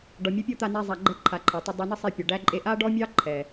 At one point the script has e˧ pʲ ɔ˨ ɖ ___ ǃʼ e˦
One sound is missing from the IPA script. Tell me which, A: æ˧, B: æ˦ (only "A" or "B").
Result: B